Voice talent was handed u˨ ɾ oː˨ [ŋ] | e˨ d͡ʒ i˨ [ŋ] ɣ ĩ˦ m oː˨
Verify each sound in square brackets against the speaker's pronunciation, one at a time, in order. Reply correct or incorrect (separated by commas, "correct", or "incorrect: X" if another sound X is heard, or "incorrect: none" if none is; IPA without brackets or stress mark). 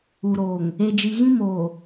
correct, incorrect: none